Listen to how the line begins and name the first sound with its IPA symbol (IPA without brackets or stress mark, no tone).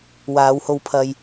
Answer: w